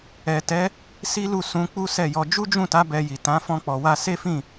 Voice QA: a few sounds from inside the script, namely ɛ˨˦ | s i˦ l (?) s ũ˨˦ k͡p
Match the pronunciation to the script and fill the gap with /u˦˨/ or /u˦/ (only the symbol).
u˦˨